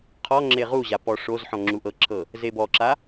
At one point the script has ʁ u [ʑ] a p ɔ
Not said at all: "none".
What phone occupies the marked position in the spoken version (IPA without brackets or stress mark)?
ʑ